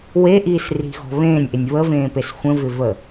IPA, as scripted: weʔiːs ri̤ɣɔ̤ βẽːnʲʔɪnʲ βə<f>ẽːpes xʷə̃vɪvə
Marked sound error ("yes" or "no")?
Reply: yes